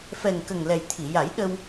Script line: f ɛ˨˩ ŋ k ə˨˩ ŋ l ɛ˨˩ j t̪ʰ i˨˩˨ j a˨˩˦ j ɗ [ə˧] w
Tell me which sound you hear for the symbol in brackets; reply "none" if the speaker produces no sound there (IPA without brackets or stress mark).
ə˧